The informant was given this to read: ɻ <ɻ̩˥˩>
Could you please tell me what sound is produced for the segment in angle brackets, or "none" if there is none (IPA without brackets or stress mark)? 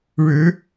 ɻ̩˧˥